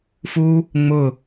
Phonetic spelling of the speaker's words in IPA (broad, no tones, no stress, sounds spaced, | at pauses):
f u | ŋ͡m ʊ